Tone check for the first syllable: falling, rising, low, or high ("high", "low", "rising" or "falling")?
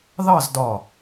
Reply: falling